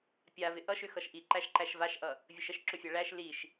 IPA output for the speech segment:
pʲavɪ ʔʌʃʏ xʌʃʔiǃæʃ ǃæʃvaʃʔʌ | vʲəʃəʃǁʏfʲa ɭæʃ liʃ

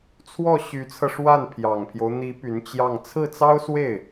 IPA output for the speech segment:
t͡sʰwɔ˥˩ ɕy˧˥t͡sʰɤ˧ʂwa˥˩n pʰjɑ˨˩ŋpʰjo˦ʊ̯ n̪i˧˥ py˧˥nt͡ɕjɑ˥˧ŋ t͡sʰɹ̩˥˩t͡sɑ˥ʊ̯swe˥˩ɪ̯

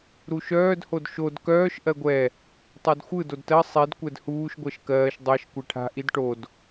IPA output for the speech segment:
ɾuʃœːd hodʃod kœːʃ ʔɜɡʷɛ | tˤadxʷɯ dodtɜ sˤid kʷɛdhuːʃ ɡʷɜʃkɜːʃ dˤɜʃ kʷɛʈʰa̤ ʔidʈod

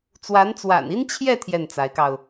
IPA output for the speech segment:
t͡swa˧˥n t͡swa̰˨˩ni˥nt͡ɕʰjɛ˥˧ t̪ʰjɛ˥˩nt͡sa˧˥ɪ̯kɑ˧ʊ̯

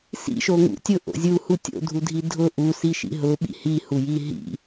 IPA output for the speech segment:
sḭʃoŋṵ tʲʊʔo̰ zʲuhu tʲo̰dʱudʱi dʱʊ ʔusiʃḭ ɦʊɓḭ hihuji ɦḭ

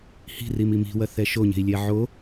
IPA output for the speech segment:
hi̤ rimimi̤wɐ θɛʃoɲe̤i̯lʲɛ ʕo

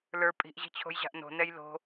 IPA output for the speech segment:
lə˞ pʼi̤ʔʑi̤t͡ɕʰo̤jʑa̤ʔ no̤nɛj lo̤

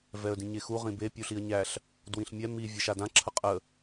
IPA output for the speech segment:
vɛə̯dĩɲexu ʁĩbe pʲuɬiə̯ɲæɬ | dwĩɬmʲɛ mi vʲɛʃadã ǁʰəqʼə

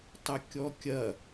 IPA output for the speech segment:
tˤɐkʲɔkʲɐ

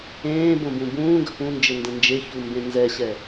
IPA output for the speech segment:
ẽːbõbũ bũːɡə̤ pũnd͡ʒɘndə̃ nd͡ʒeçumbẽ nzɛɕɛ

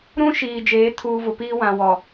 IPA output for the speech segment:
ɾũ˦ʃiː˨ d͡ʒeː˨˦tʰuː˨ vʊ˨piː˦ wã˨wɔ˨

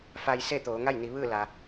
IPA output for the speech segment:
fa˧jse˥˨t̪oː˩˧ ŋa˥˨jni˩˧ʋɯː˥˨ la˩

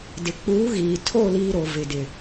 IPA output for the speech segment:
dɪ˨ k͡puː˨˦ɣiː˨tʰo˦˨ liː˦ɾo˨ vɪ˨dɪ˨

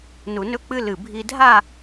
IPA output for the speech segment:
nu˧nɵ˥k͡pɨ˥lɨ˧˩ bʱi˧dʱa˥˧

